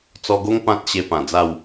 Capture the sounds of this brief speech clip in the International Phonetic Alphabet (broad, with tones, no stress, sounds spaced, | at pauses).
t͡s ɔ˧ ɡ o˦ ŋ p ã˦ t̚ ɕ e˧ p ã˨˩ d͡z a˥˧ w